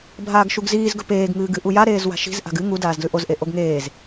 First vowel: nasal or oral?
oral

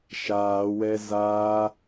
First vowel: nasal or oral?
oral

